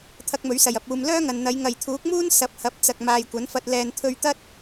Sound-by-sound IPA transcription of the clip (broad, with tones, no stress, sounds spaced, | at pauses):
t̪ʰ ɐ˧ k̚ m ɵ˨˥ ɥ s ɐ˨˩ j ɐ˧ p̚ uː˧ m l œː˥ ŋ ɐ˨ n n̪ ɐ˨˧ j ŋ ɐ˨ j t̪ʰ uː˨˥ k̚ m uː˥ n s ɐ˨˥ p̚ h ɐ˨˥ p̚ t͡s ɐ˨ k̚ m aː˨ j kʷ ɐ˨˥ n f ɐ˧ t̚ l ɛː˨ n t̪ʰ ɵ˧ ɥ t̪ ɐ˥ t̚